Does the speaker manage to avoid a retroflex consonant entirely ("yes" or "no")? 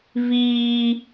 yes